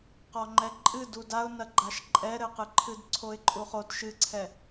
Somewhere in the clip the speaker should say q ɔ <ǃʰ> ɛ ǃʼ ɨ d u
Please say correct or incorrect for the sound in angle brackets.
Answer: incorrect